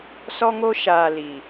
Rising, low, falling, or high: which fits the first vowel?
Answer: high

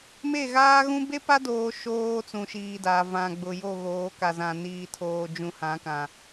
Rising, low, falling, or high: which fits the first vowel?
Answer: falling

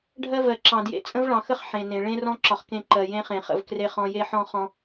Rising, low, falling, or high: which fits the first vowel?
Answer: high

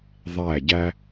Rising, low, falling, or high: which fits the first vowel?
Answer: falling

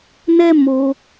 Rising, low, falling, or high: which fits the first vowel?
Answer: high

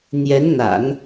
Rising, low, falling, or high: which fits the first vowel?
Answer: rising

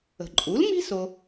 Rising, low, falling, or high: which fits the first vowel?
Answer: low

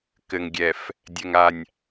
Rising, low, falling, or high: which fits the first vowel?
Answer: low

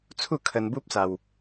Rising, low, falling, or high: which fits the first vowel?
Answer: falling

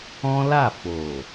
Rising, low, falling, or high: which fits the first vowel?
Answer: high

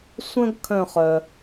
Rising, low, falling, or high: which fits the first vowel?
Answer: high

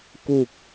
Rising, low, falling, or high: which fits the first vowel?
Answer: low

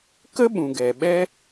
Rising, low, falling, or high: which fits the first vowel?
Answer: high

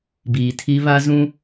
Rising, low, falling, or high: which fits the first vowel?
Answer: low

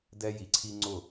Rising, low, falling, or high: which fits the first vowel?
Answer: high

